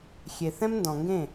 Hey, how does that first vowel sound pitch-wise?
low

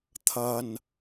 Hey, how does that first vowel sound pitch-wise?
low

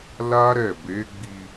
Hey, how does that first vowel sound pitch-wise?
high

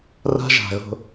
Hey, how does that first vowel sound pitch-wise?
high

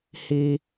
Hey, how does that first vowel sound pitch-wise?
high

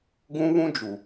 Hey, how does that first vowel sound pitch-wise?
high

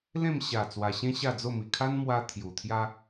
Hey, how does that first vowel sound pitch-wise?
falling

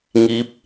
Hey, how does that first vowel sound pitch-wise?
rising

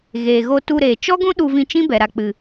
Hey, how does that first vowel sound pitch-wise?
low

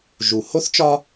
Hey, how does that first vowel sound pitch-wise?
low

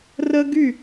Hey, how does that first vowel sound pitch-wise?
high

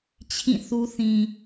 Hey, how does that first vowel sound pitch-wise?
falling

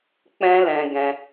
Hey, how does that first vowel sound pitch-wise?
high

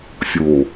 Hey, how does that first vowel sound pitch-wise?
low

